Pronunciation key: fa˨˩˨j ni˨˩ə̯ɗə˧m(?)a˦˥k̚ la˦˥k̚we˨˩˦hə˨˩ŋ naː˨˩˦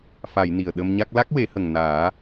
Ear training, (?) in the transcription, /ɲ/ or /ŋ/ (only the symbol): ɲ